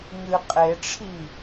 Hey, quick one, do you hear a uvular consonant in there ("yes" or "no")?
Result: yes